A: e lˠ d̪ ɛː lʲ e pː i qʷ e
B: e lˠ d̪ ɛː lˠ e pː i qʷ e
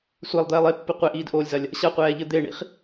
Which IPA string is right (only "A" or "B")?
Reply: B